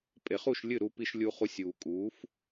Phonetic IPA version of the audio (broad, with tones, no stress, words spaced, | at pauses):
pʼe˩χu˥˩ʃ lʲɨ˥˩ ɾu˧pi˧ʃlʲu˧χu˧sʲ uː˩kʼuː˩˥f